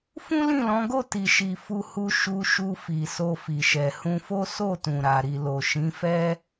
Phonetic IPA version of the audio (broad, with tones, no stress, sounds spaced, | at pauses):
f ũ˦ l ĩ˦˨ l ɔ̃˨˦ ɡ o˦˨ t i˨ ʃ i˨ f u˧ h u˧ ʃ u˧ ʃ u˧ f i˨ s o˧ f i˨ ʃ ɛ˨ h ũ˧ f o˦ s o˦˨ t ũ˨ ɾ a˨ ɾ i˨ l o˨ ʃ ĩ˨˦ f ɛ˦